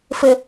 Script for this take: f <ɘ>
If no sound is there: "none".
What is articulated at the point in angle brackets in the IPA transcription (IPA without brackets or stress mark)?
ɘ